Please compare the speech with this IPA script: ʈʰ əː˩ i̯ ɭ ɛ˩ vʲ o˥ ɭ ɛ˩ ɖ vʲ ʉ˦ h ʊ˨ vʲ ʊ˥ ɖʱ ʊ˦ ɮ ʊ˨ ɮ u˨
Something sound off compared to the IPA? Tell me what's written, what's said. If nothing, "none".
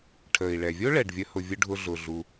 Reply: ʉ˦ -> ə˦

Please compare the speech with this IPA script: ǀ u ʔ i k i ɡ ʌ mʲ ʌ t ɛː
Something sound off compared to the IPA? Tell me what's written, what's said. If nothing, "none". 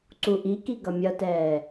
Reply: none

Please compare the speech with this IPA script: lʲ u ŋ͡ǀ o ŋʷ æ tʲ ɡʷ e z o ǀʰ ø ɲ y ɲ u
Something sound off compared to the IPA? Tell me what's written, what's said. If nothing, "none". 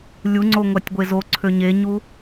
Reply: y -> e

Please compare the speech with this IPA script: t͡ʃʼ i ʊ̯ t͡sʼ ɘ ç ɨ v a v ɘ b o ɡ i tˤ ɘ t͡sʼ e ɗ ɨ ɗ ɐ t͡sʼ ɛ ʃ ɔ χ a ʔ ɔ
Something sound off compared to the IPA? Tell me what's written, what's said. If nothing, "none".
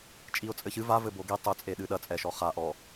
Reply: none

